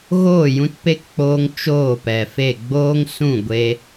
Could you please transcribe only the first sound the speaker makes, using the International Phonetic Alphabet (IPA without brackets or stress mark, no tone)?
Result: ɣ